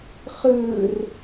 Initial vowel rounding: unrounded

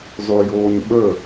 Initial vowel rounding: rounded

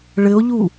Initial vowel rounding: unrounded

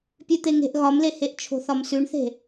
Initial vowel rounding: rounded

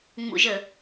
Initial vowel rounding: rounded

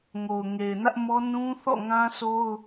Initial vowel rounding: rounded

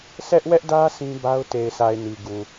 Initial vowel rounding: unrounded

